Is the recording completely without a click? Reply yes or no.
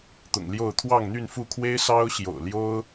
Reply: yes